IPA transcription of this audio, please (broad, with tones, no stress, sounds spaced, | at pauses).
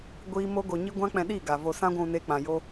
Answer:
ɡʷ iː˦ m o˦ ɡ o˧ ɲ i˦ ɡʷ ã˦ k͡p ɛ̃˧ ɗ iː˦˨ ɡ a˨ v o˧ s ã˦ ɡʷ ũ˧ n e˧ k͡p ã˨ j o˦